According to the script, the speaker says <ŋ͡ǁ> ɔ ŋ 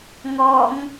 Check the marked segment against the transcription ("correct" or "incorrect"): incorrect